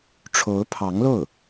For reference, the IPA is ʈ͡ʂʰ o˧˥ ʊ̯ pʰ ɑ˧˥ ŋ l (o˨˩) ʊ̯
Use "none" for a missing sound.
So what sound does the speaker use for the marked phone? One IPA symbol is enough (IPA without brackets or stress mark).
o˥˩